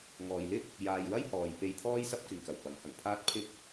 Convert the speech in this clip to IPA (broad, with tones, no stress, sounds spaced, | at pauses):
ŋ ɔː˨ j l ɪ˥ k̚ | j aː˨ j w ɐ˥ j h ɔː˨ j p e˧ j t̪ʰ ɔː˥ j s ɐ˥ p̚ k ɪ˨ ŋ k ɐ˨˩ w p ɐ˨˥ ŋ h ɐ˨˩ ŋ pʰ aː˥ t̚ pʰ ɪ˥ k̚